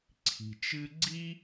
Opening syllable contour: low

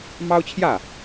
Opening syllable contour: high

